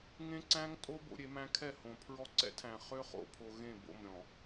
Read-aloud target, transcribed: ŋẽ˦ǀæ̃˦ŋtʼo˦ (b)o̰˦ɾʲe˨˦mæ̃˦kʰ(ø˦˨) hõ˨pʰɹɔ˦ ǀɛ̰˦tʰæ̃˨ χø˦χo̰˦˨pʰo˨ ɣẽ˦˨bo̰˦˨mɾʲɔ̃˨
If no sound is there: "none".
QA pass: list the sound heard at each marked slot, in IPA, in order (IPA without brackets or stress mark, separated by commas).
b, ɛ˦˨